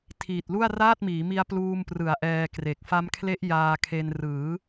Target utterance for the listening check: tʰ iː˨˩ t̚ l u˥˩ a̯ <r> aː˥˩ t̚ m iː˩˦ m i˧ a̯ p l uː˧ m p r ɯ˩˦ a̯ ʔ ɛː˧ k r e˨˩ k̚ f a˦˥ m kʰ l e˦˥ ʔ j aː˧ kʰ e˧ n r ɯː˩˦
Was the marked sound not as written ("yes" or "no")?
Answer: no